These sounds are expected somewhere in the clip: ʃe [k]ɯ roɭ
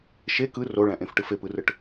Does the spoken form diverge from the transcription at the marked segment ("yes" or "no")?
no